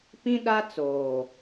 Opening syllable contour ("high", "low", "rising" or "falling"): high